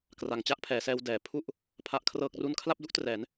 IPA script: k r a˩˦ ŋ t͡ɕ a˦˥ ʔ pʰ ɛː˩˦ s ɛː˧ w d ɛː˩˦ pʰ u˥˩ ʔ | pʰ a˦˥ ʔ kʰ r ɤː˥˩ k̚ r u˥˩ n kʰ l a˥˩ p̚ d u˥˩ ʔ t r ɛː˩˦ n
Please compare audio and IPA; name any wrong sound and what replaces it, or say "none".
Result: none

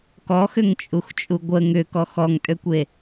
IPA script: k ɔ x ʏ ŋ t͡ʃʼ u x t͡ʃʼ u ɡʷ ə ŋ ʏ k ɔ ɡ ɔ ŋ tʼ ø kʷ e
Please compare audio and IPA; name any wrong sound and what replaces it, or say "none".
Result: ɡ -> x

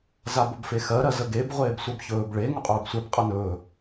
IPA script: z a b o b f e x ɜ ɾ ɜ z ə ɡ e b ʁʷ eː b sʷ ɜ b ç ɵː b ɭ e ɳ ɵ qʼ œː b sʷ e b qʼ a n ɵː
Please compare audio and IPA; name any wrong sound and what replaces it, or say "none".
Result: ɳ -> ŋ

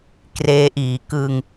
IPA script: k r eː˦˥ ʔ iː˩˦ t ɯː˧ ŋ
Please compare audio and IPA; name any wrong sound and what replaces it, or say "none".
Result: t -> k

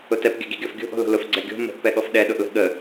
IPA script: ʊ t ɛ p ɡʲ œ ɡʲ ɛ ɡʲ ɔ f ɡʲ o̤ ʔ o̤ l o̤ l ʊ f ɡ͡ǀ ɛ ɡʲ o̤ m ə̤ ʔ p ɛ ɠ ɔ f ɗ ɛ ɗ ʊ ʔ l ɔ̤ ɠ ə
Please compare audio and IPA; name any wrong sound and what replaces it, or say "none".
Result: ɔ̤ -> ə̤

